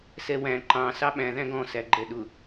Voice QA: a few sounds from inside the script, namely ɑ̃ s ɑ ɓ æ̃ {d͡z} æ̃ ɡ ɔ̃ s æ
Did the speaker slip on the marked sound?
yes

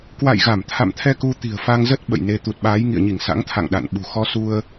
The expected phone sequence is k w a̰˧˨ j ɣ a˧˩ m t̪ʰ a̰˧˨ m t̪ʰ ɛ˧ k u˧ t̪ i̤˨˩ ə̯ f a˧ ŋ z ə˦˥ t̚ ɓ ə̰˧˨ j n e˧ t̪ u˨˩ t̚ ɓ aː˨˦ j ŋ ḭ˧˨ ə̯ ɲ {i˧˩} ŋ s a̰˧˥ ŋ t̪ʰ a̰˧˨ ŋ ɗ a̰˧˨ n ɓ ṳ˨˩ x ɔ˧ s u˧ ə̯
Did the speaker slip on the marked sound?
no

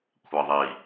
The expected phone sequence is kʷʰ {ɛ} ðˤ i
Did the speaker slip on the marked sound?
no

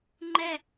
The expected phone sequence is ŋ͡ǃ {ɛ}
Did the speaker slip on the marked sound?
no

